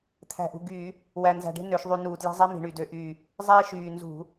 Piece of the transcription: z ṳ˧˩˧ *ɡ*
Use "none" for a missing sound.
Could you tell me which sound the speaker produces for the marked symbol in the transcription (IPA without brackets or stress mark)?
none